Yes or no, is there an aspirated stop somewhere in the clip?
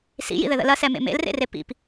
no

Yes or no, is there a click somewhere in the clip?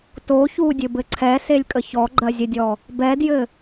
yes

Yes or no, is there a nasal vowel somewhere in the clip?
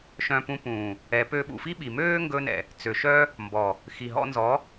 yes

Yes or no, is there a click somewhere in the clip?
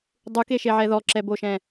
yes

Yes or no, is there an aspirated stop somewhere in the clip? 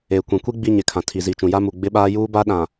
yes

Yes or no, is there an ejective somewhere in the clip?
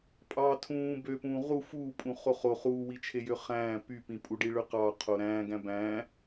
yes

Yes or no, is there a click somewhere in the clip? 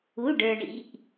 no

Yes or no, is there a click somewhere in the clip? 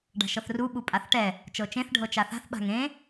no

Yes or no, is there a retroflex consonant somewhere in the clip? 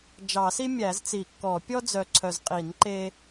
no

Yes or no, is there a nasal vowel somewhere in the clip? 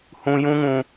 yes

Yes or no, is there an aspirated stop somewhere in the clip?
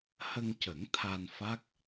yes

